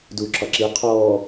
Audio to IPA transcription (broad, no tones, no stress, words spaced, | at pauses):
duːǁɒǁi qʰɔː